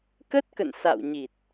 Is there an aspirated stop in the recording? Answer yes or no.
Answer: no